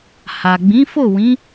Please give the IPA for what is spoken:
h a˨ ɡ͡b ĩ˨˦ f o˦˨ w ĩ˨˦

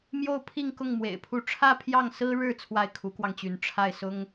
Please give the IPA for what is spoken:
m j o˥˧ ʊ̯ pʰ i˥˧ ŋ k ʊ˥˩ ŋ m w ḛ˨˩ ɪ̯ pʰ u˥˧ ʈ͡ʂʰ ä˥˧ pʰ j ɑ˥˩ ŋ s ɹ̩˥ ɻ ɻ̩˥˧ t͡sʰ w a˥˩ ɪ̯ kʰ u˧˥ k w ɑ˧ ŋ t͡ɕ y˧˥ n ʈ͡ʂʰ a˥˩ ɪ̯ s ʊ˥ ŋ

